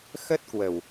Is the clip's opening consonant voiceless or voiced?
voiceless